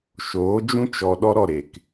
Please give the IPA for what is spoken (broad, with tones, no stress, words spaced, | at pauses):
ʃoː˨˦d͡ʒũ˦ t͡ʃɔ˨ ɗɔ˦ɾɔ˦˨ɾe˨k